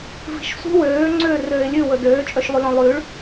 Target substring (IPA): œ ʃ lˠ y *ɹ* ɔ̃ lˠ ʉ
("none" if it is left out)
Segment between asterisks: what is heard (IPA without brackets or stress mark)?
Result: l